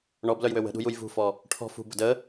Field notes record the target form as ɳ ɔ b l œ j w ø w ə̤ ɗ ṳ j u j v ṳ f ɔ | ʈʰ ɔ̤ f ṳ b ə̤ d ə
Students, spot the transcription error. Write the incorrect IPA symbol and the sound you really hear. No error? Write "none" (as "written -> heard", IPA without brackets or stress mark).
none